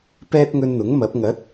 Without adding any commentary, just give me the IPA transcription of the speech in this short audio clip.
p ɛː˥ t̚ ŋ ɵ˧ n n̪ ʊ˨˥ ŋ m ɐ˨˥ p̚ ŋ ɐ˨˥ t̚

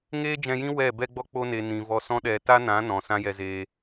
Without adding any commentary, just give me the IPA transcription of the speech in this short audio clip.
ŋ eː˦ d͡ʒ ɛ̃˧ j ĩ˦ w ɛ˦˨ b ɛ˧ ɡ͡b ɔ˧ k͡p o˦ n e˧ n ĩ˨ v ɔ˧ s ɔ̃˦ ɗ ɛ˧ t a˦ n ã˨˦ n ɔ̃˨ s ã˦ j ɛ˧ z eː˧

